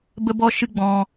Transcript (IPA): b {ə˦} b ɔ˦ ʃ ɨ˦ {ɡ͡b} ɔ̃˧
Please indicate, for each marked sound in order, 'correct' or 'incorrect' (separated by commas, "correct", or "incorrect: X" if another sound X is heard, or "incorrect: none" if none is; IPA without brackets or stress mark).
correct, correct